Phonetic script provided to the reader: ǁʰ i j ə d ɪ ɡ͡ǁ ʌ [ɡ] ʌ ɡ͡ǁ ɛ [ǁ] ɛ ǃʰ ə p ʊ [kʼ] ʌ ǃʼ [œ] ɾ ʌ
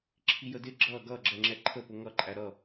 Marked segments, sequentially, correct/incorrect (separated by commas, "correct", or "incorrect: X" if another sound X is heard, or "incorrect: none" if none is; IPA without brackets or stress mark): correct, incorrect: ŋ͡ǁ, incorrect: ŋ, incorrect: æ